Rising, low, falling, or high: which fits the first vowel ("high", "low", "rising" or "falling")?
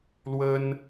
high